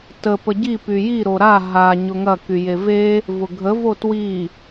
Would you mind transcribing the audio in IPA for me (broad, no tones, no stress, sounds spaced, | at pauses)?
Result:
t ə p ə ɟ i p y j i ɾ o ɾ a ɦ a ɲ ʊ ŋ ɐ k y j e v e | v ʊ ɡʱ ə v o t w i